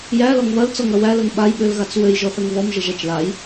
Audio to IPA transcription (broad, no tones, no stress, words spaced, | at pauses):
jælɔŋ βɐlt͡sɔŋɐ wælɐŋ ɓajɓølɣat͡s wøjʒɔθɐŋ βɔmʒəʒæt͡ʃ laj